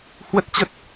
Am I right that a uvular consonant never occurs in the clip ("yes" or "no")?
yes